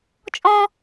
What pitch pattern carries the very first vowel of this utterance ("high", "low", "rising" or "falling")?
high